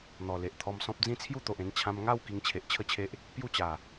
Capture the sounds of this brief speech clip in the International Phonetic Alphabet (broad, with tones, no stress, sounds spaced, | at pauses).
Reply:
n̪ ɔ˨˩ l e˨ ʔ t̪ʰ ɔ˧ m s ɔ̃˦ p̚ d͡z ĩ˦ t͡sʰ j u˥˧ t̪ o˨ ʔ ẽ˧ n t͡ɕʰ ã˧ m ŋ a˥˧ w k i˧ ŋ t͡ɕʰ e˨ ʔ t͡ɕʰ ə˥˧ t͡ɕʰ e˦ ʔ | p j u˥˧ t͡ɕ a˨˩